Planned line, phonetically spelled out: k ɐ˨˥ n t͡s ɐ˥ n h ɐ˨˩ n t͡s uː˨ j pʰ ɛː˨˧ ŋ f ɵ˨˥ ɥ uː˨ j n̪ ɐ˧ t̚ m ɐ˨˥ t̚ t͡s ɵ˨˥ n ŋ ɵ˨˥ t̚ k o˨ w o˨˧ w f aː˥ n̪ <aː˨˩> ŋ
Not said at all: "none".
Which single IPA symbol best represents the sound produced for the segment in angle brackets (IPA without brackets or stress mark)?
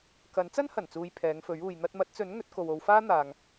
aː˨